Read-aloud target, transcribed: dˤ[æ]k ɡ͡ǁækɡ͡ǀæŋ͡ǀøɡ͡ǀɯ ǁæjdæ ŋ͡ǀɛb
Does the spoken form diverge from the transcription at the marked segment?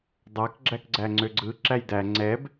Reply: yes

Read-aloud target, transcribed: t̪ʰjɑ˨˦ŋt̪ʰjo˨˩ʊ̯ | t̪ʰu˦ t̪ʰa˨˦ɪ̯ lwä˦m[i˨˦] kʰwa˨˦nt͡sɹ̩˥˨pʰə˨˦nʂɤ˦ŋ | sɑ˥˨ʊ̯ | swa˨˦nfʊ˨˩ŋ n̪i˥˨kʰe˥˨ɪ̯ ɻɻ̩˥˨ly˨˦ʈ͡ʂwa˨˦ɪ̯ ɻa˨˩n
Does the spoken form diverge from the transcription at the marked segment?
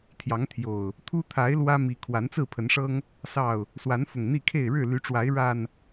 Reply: no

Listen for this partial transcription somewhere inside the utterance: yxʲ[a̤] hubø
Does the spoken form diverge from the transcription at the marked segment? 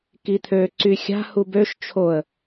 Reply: no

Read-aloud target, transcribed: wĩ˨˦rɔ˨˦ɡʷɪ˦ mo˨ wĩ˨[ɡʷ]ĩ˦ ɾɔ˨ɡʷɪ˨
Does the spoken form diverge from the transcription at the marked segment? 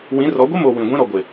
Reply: no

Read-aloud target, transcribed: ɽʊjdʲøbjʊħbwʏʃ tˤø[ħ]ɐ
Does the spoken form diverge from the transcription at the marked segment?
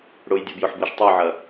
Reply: yes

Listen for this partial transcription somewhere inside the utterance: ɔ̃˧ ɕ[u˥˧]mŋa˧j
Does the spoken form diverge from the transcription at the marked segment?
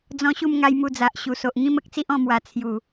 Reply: no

